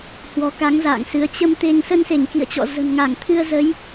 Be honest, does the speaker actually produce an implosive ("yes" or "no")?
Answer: no